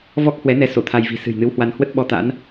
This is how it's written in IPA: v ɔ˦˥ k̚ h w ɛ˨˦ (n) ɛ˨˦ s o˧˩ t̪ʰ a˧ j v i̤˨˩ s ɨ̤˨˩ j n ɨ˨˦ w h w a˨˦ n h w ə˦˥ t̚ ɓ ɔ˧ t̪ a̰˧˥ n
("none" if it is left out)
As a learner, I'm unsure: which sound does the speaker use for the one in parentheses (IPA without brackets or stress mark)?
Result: n